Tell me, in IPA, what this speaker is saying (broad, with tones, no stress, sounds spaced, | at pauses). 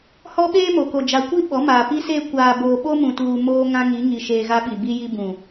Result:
h ɔ˦ ɓ eː˦ m o˨ k o˨ d͡ʒ a˨ kʷ i˦ ɓ ɔ˨˦ m aː˨ p i˦ s eː˦ kʷ aː˨ b oː˨ ɓ o˦ m ũ˨ t uː˨ m oː˦ ŋ ã˦ ŋ i˨˦ ŋ i˨ ʃ eː˨ ɣ a˦ ɓ i˨ b i˦ j i˦ b ũ˨